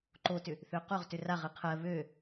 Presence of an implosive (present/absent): absent